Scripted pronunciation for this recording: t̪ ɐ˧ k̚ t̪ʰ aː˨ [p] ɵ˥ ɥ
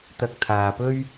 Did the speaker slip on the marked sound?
no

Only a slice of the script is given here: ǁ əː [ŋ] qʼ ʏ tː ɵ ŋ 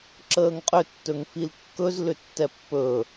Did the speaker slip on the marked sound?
no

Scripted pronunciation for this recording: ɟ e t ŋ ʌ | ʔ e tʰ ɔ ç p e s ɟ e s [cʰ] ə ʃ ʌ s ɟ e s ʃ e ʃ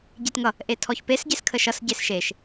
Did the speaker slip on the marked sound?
yes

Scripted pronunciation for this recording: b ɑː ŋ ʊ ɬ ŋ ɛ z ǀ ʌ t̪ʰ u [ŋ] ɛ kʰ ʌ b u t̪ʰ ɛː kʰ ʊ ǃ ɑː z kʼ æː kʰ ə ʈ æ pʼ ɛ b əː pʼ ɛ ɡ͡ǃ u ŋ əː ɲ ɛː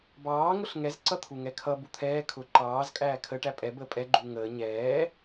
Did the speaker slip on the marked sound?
no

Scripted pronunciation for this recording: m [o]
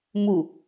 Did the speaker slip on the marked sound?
yes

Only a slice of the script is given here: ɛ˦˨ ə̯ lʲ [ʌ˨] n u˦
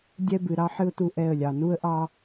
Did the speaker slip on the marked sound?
yes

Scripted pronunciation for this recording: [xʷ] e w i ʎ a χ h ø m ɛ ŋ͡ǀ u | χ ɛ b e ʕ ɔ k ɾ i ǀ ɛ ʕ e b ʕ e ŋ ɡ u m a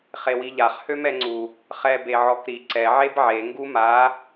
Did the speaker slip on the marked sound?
yes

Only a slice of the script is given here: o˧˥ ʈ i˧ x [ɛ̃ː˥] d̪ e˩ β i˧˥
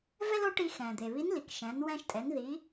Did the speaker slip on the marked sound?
yes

